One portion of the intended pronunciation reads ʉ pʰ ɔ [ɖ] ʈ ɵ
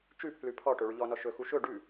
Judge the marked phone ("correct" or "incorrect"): incorrect